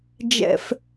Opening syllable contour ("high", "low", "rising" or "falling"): low